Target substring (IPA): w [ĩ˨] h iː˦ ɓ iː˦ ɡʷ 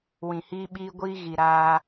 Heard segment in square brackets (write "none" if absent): ĩ˨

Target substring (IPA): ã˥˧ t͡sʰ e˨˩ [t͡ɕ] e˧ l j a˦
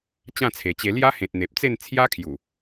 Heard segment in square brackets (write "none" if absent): t͡ɕ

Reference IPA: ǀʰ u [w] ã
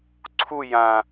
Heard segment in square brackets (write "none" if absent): j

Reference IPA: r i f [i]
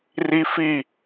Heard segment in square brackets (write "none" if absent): i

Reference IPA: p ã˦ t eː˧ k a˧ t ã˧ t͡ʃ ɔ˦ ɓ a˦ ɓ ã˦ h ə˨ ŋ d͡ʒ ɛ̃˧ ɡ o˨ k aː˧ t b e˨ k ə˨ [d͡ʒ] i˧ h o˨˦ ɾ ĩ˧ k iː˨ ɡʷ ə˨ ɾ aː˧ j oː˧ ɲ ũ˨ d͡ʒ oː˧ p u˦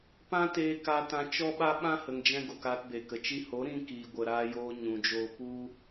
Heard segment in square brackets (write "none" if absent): t͡ʃ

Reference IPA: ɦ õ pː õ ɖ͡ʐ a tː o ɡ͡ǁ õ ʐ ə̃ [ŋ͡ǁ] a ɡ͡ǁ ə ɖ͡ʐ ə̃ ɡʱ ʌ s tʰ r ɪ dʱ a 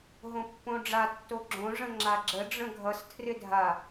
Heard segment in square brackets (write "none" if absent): ŋ͡ǁ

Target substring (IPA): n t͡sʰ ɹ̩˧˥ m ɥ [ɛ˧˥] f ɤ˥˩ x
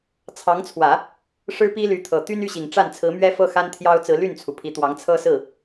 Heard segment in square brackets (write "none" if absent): ɛ˥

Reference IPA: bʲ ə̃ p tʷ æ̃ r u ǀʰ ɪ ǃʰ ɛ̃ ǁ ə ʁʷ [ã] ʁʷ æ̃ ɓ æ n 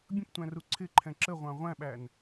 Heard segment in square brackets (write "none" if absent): ɑ̃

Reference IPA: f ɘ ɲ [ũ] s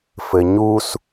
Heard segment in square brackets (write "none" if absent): u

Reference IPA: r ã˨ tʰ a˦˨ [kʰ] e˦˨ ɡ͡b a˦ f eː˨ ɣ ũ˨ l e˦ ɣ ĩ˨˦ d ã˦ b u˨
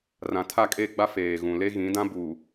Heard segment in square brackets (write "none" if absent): kʼ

